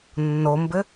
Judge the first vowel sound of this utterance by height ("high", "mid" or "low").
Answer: mid